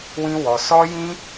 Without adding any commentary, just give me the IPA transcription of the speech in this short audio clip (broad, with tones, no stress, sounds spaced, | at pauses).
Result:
w ĩ˦ w ɔ˧ s ɔ˦ j ĩ˦